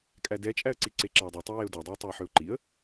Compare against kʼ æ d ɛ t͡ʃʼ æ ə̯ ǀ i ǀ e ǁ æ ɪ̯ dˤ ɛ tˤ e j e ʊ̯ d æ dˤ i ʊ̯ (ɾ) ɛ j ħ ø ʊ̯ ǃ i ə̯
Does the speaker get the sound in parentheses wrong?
yes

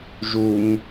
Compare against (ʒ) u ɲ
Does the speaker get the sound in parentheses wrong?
no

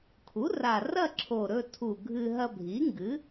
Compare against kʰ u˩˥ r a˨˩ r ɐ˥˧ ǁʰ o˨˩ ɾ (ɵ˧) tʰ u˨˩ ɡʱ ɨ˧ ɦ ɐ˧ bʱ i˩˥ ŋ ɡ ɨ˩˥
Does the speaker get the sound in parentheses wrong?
no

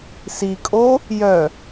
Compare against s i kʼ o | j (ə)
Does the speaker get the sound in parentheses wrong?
yes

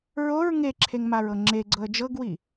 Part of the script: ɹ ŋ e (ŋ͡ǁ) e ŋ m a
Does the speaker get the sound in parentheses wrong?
yes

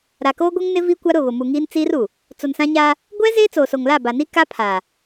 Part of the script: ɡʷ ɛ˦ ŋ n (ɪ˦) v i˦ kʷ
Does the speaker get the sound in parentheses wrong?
no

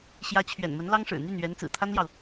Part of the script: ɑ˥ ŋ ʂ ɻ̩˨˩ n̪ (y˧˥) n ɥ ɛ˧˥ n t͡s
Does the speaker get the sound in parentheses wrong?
yes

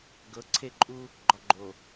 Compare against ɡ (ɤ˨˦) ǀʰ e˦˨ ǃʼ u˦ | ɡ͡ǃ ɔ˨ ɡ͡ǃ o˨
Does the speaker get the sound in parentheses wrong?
no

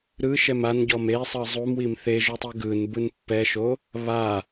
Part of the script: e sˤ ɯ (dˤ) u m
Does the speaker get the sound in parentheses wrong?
yes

